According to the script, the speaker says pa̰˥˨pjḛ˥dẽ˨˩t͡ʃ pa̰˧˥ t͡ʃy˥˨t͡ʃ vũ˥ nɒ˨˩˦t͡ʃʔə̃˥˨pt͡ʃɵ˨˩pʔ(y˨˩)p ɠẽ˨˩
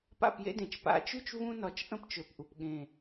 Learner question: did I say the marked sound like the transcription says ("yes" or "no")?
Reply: no